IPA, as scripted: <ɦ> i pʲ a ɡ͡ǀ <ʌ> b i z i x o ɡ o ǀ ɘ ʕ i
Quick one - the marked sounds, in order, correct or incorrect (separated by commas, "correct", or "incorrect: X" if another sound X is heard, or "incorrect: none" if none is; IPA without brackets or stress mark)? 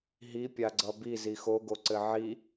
correct, correct